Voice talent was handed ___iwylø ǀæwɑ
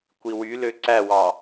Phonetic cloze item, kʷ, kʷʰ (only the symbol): kʷ